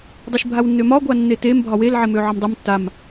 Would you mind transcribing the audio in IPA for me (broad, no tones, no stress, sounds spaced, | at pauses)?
dˤ ø ʃ bʱ a w nː ø m ɒ ɡʷ a nː e t e m bʱ ɒ w e l ʕ e m ø ʕ ʌ m dˤ ʌ m tː a m